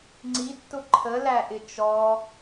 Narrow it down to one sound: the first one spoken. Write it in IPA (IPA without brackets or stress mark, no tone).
ŋ͡ǀ